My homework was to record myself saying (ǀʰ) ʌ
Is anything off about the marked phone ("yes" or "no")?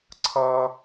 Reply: no